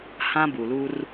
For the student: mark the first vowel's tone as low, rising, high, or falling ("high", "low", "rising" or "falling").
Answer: high